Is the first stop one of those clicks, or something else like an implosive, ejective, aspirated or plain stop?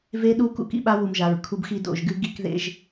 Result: implosive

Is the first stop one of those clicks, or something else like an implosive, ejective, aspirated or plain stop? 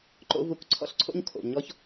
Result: click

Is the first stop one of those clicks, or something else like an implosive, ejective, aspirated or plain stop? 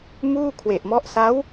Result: aspirated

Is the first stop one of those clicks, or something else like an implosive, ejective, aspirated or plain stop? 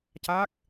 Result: plain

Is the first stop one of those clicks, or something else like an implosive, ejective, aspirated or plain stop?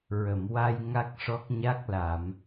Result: plain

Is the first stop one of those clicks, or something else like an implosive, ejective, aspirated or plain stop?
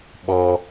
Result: implosive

